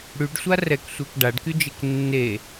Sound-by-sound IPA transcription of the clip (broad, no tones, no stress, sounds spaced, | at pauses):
ɽ y ɖ sʷ a r ɛ k sʷ e k ɖ a ɖ k y d͡ʒ e k nː e